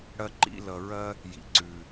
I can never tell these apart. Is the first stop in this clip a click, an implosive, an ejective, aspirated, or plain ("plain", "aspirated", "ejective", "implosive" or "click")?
click